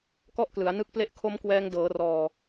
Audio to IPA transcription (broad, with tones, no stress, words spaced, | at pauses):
kɔ˥˩ʔklɯ˩˦a̯ nɯ˦˥k̚ple˦˥ʔ kʰo˦˥mkwɛː˧ŋdɤː˩˦rɔː˨˩